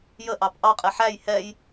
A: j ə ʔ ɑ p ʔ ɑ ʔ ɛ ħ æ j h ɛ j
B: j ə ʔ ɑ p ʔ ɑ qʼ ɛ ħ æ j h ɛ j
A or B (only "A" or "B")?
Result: B